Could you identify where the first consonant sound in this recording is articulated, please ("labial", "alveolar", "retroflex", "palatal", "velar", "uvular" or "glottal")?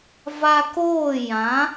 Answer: labial